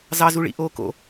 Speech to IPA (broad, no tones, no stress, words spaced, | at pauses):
zɑzuɭḭ ʔoːko̰